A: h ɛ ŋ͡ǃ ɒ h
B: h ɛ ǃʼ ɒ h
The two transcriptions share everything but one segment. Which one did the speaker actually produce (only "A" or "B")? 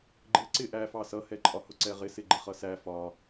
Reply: B